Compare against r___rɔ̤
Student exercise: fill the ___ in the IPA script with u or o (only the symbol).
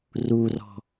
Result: u